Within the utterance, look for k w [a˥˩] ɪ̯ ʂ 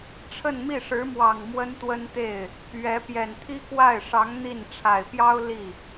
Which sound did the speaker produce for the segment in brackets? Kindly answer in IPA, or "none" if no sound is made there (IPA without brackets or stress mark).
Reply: a˥˩